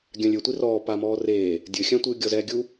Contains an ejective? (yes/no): no